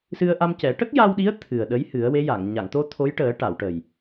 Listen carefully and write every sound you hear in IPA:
s ɨ˧ ə̯ ʔ a˧ m c ɛ˨˩˦ ʈ ə˦˥ k̚ j a˧ w ɗ i˧˥ ə̯ t̪ʰ ɨ˨˩ ə̯ ɗ ə˧˥ j h ɨ˨˩˦ ə̯ w e˧˥ j a˨˩˨ ŋ ɲ a˨˩˨ ŋ t̪ o˧ t̪ʰ o˧˥ j ʈ əː˨˩˦ ʈ a˨˩˨ w ʈ ə˨˩ j

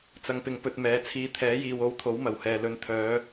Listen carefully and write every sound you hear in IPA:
t͡s ɐ˧ ŋ p ɪ˧ ŋ p ɵ˧ t̚ m ɛː˨˧ t͡sʰ iː˧ t̪ʰ ɛː˨˥ j iː˨ w o˨˧ w t̪ʰ o˨˥ w m ɐ˨˩ w h ɛː˨ l ɵ˨˥ n t̪ʰ œː˨˧

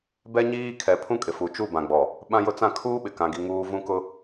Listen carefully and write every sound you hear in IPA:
b ɛ˦ ɲ iː˦ kʰ ɛ˨ pʰ ũ˦ kʼ ɪ˨ f u˨ t͡ʃ u˦˨ b ã˨ ɡ͡b ɔ˨ | ɓ ã˦ j ʊ˦ t͡s ã˦ kʰ uː˦ ɓ ɪ˨ k ã˦ ɡ i˦ ŋ uː˦ v ũ˦ k ʊ˦

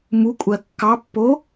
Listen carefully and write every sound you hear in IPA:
m u kʷʼ ɜ kː ɑ pː o

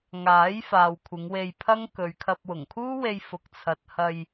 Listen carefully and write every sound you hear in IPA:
ŋ aː˨˥ j f aː˨ w kʷʰ ɪ˨˧ ŋ w e˧ j pʰ ɐ˥ ŋ k ɵ˨ ɥ kʰ ɐ˧ p̚ w ʊ˨˩ ŋ kʰ uː˥ w e˧ j f ʊ˨ k̚ t͡sʰ ɐ˨ t̚ h ɐ˧ j

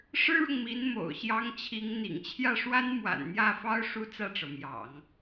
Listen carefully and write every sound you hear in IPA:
ʂ ɻ̩˥ ɻ ʊ˨ ŋ m i˧˥ n m o̰˨˩ ʊ̯ ɕ j ɑ˥ ŋ t͡ɕʰ i˧˥ ŋ n̪ ḭ˨˩ ŋ t͡ɕʰ j ä˥˩ ʂ w a˥ n m w a̰˨˩ n n̪ j ä˥˩ f ɑ˥ ʊ̯ ʂ u˥ t͡s ä˥˩ ʈ͡ʂ ɤ˩ m j ɑ̰˨˩˦ ŋ

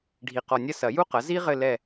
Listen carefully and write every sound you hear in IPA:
ɖʱ i˨ q ɔ˨ nʲ ɐ˦˨ s ɐ˨˩˦ j u˥ q ɐ˩˥ z i˥ ʁ ɘ˦˨ l ɛ˦˨

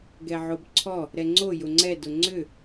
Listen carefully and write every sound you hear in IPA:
ɡ ɛ ʕ o b ǀʰ ɔ | ɾ ɛ ŋ͡ǀ o j ʊ ŋ͡ǀ ɛ d ʊ ŋ͡ǀ ʏ

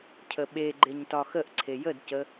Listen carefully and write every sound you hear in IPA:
cʰ ə ɓ e ɡ͡ǃ e ɲ t ɒ x ə ʔ ǀʰ e j ə d c ə

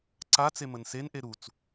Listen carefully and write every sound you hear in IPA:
ǀ a t͡s e m ə n s e n ʔ e ɾ u t͡s

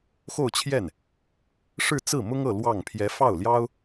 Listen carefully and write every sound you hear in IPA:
x o˥˧ ʊ̯ t͡ɕʰ j ɛ˥˩ n | ʂ ɻ̩˥˧ t͡s ɹ̩˥˩ m ʊ˥ ŋ ɤ˥˧ l w ɑ˥˩ ŋ pʰ j ɛ˧˥ f ɑ˥˩ ʊ̯ l j ɑ˥ ʊ̯

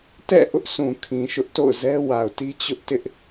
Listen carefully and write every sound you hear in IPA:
t ɛ̰˦˨ ʔ ʊ˦ ʔ sʰ ũ˨ kʰ ĩ˨ ʃ ʊ˦ ʔ t o̰˦˨ ʊ̯ z ɛ˦ w a˨ ʊ̯ t i˦ t͡ɕ ʊ˦ ʔ t ɪ˦ ʔ

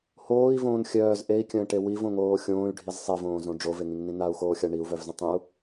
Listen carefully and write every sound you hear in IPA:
h oː i̯ v õː n xʲ œː z ʔ e i̯ kʲ ə̃ː ʈ e w i v õ ŋ oː xʲ õː y̯ ɖʱ i z sˤ e v õː z õ ɖ͡ʐ o v e ŋ ĩ ŋ n ĩ n a u̯ x oː xʲ a ɳ i u̯ v œ v z ə̃ tˤ ĩ u̯

